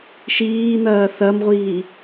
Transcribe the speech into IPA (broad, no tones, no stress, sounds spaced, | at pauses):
ʃ iː n̪ ɐː θ ɐ m ʁʷ iː